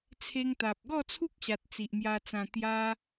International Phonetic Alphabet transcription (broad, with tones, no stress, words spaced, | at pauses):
t͡sʰe˧ŋt̪a˨p̚ ɡɔ˥˧t͡sʰu˦k̚ɕa˨t̚ t͡si˨ʔmja˧t͡sã˧ t̪ja˦